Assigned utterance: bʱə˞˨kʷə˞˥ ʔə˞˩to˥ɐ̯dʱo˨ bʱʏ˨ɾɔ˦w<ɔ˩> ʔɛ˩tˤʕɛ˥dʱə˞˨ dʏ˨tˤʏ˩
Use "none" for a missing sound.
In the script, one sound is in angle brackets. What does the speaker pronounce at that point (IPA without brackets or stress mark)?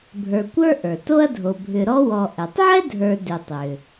ɔ˨